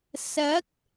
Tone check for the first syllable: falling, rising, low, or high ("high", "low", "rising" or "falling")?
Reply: rising